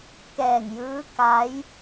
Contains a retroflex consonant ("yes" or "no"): no